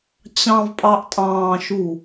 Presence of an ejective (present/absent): present